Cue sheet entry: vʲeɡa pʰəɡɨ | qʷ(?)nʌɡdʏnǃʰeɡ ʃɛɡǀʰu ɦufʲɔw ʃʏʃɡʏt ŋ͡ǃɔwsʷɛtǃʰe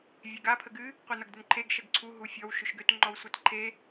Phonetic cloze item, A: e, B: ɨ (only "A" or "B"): B